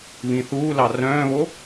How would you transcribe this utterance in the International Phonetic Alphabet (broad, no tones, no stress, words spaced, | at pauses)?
βĩθuːlɑ rœ̃ːβo